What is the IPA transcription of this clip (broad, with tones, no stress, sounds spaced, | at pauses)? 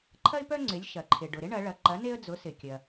ǃʰ ɐ˦ ɪ̯ p œ˦ ŋ͡ǀ ɪ˩˥ lʲ ʃ ɐ˩ ǃʰ ɪ˩ ɖ ʊ˩ ɾ ɪ˦ ɳ ɐ˩˧ ɭ ɐ˩˧ ǃ ɐ˩˥ n e˦ ə̯ d͡z ʊ˩˥ s ɪ˩ kʲ ɐ˩